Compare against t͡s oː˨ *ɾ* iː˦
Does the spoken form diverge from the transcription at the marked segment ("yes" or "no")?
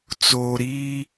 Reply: no